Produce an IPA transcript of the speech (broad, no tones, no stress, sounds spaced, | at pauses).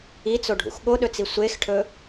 i t͡s o ɖʱ ṵ x ɠ o ɗ ɵ t͡s i sʷ e x ʈʰ ɵ